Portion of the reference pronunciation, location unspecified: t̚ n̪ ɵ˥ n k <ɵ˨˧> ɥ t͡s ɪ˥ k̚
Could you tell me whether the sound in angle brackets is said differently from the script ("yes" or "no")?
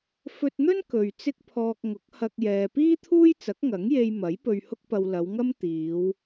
yes